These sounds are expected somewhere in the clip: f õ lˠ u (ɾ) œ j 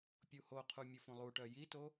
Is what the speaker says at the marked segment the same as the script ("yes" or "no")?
no